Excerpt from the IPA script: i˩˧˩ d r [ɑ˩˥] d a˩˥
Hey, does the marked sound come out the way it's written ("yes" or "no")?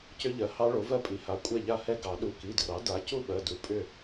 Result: yes